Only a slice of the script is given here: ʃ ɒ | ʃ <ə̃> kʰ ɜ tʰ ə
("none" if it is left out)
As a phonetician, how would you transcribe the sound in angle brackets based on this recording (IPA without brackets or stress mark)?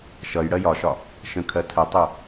ə̃